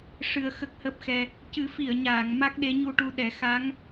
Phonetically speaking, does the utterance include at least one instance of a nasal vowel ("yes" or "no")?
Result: no